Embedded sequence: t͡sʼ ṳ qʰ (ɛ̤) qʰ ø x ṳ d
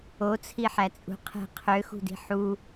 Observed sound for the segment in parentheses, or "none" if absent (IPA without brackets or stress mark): ɛ̤